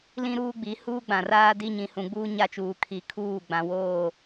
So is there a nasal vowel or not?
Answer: yes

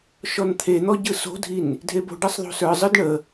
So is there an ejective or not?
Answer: no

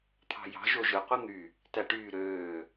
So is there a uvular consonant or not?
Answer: yes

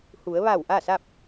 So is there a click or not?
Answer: no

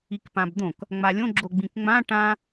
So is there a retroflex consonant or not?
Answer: yes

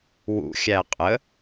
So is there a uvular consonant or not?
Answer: yes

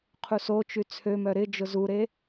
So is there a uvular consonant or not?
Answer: yes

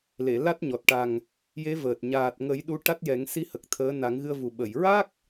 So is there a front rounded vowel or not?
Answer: no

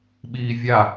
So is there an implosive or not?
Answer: yes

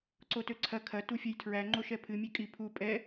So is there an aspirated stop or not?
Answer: yes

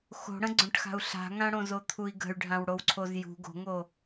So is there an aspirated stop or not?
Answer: yes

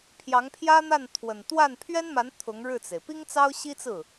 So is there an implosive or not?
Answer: no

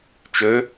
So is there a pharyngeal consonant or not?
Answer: no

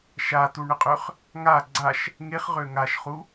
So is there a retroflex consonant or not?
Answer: yes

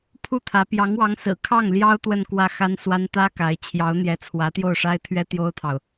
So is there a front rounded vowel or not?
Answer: no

